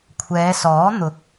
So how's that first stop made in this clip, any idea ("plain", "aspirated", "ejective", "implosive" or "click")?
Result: aspirated